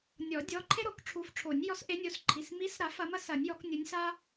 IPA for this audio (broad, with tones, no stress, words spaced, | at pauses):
nʲɔ˨˩˦dʲɔ˩˧˩ ǃʰe˥ɾo˨˩˦kʈ͡ʂʰu˨˦fʈ͡ʂʰo˨˩˦nʲ jɔ˨˦sʔe˨˦nʲo˩˧˩sǃʰi˩˧˩s mi˨˦sɾa˨˩˦f ɐ˨˦mɐ˥sɐ˨˩˦nʲjɔ˨˩˦k nʲu˨˦nʲsa˥